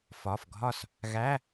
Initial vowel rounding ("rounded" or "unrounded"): rounded